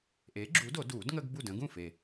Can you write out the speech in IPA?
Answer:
ʔe˨˥ɡ͡ǁu˨˥do˨˩˦ du˨˩˦dŋə˦ɡ bu˥˩də̃˨˥ ɡũ˥˩fe˨˩

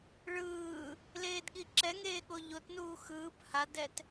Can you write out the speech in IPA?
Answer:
ɭɯː | leːdɠiǁɛŋeː ɠoʎotnuː xɯːp hadɛt

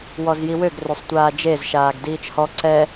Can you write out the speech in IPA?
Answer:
wɔzjiwøɡ røsˤtʷaːd͡ʒez ʃaːɡdiːt͡ʃhɔ ǀɛ

